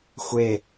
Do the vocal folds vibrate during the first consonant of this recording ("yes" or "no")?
no